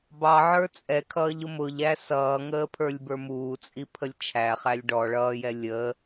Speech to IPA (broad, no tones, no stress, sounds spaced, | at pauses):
b ɑ ʕ ə˞ t͡sʼ ɛ kʰ ʌː ʎ ʊ m ʊ ʎ æ s ʌː ŋ əː pʰ ə˞ lʲ b ə˞ m uː t͡sʼ i pʰ ə lʲ t͡ʃʰ æ χ æ lʲ ɖ ɔ ɭ ʌː j ɛ lʲ ə